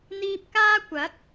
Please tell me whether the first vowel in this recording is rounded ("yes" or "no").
no